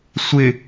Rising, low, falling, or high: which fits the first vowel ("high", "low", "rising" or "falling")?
low